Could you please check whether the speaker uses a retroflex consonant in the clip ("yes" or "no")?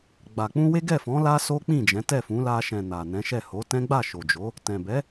no